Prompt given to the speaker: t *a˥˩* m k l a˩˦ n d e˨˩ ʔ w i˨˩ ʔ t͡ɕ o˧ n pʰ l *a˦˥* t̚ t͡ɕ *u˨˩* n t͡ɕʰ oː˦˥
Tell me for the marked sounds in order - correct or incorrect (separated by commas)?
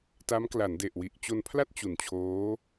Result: incorrect, incorrect, correct